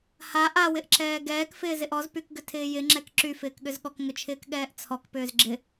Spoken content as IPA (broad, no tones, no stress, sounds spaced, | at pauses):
h a ʔ a w ɪ ʔ ǁ ɛː ɡ ɛː k f ɪː z ɪ ʔ ɔ z p y k ɡ ʏ tʰ ɪː j ɪ ŋ͡ǁ ɛ k ǁ y f ɪː k ɠ ʏ z ɠ ɔ k ŋ ʏ t͡ʃʰ ɪː k ɠ ɛː ʔ t͡sʰ ɔ k p ʏː z ɡ͡ǁ ɪ